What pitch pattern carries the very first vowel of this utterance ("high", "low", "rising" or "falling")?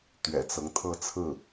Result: low